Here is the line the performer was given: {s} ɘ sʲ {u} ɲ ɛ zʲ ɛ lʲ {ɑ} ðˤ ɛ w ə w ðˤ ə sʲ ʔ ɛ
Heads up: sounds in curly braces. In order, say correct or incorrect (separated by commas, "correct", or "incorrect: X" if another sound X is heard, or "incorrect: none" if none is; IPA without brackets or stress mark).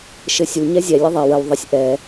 incorrect: ʃ, correct, incorrect: ə